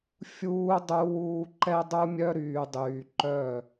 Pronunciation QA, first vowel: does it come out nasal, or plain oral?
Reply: oral